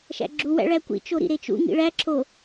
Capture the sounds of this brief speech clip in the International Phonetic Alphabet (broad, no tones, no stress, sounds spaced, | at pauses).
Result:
ʃ æ̰ ɡ͡ǁ u w æ̰ ɭ æ kʷ ḭ t͡ʃ o ɾ ḭ ɾ e t͡ʃ ṵ ŋ ḭ ɭ æ ǁʰ o